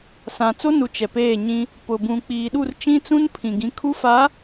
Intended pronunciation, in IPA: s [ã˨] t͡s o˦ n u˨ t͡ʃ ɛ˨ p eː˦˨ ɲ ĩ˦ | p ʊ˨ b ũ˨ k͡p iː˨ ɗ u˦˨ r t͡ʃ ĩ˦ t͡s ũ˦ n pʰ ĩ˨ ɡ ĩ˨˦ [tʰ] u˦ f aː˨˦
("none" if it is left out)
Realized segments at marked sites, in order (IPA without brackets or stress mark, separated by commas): ã˨, kʰ